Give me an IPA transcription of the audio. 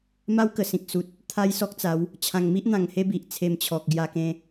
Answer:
m a˦ w k ə˨˩ s ĩ˨ k̚ s u˨ t̚ | t̪ʰ a˦ j s ɔ˦ k̚ t͡s a˨˦ w | t͡ɕʰ ã˨˩ ŋ m i˦ ʔ n̪ ã˨˩ ŋ h e˦ b i˨ ʔ t͡sʰ e˧ m t͡ɕʰ ɔ˨ k̚ ɡ j a˧ k ẽ˧

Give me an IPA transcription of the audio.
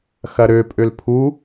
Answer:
x ɐ ɾ ø pʼ ø l pʰ u

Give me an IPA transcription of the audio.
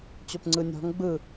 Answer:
t͡ɕ o p ŋ͡ǀ ɯ nʲ ɔ̤ ŋ ɡ͡b ɯ

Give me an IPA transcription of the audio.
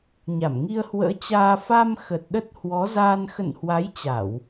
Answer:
ɲ a˧˩ m ŋ i˧ ə̯ h w ə̰ː˧˥ t͡ɕ aː˧ f a˧ m x ə˨˩ t̚ ɗ ə˦˥ t̚ h w ɔ˨˦ z aː˧ n x ə̰˧˨ n h w a˨˦ j t͡ɕ a˧˩˨ w

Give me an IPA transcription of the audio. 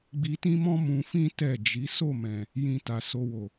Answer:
ɡ͡b i˧ t ĩ˦ m ɔ̃˦ m ũ˧ f ĩ˦ t ɛ˦˨ d͡ʒ i˨˦ s o˦˨ m ɛ̃˨ | j ĩ˧ t a˨ s o˧ w o˨

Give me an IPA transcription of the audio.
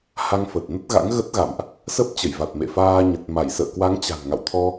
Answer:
h a˧ ŋ f ə˨˩ t̚ n ə˦˥ t̚ ɣ a̰˧˥ ŋ ɣ ə˦˥ t̚ ɣ a̰˧˨ m ʔ | s ə˦˥ p̚ t͡ɕ ə˧˩ j v a˨˩ t̚ m ḛ˧˨ f aː˧ ɲ ə˨˩ t̚ m a˧˩ j s ə̰ː˧˨ k w a˨˦ ŋ t͡ɕ a̤˨˩ n ŋ a̰˧˨ w t̪ʰ ɔ˧

